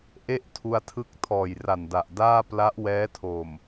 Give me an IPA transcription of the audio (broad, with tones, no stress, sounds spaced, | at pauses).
ʔ e˥˩ ʔ tʰ u˧ a̯ tʰ ɯ˦˥ k̚ tʰ ɔː˨˩ j r a˨˩ n d a˨˩ ʔ d aː˥˩ p l a˦˥ ʔ w ɛː˦˥ tʰ o˨˩ m